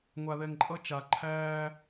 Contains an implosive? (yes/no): no